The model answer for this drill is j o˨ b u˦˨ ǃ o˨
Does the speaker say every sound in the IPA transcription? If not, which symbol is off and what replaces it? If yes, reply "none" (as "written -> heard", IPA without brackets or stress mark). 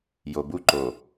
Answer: none